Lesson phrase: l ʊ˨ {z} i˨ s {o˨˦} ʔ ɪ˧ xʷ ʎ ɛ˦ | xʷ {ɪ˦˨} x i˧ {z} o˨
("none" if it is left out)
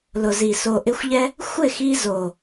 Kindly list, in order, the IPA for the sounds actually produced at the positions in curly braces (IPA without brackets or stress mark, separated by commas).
z, o˨, ɪ˦˨, z